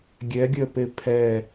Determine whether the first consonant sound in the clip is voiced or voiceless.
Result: voiced